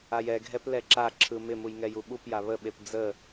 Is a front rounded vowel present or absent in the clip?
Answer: absent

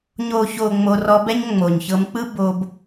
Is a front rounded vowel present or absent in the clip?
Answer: absent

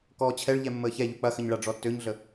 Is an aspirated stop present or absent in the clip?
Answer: present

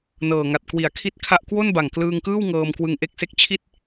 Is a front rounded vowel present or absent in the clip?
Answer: absent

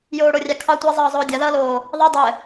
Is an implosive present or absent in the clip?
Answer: absent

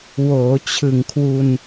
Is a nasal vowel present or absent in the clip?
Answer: absent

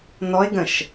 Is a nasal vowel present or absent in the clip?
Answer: present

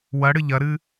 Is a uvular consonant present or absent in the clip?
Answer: absent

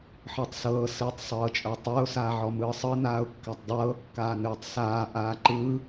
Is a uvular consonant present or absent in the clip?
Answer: absent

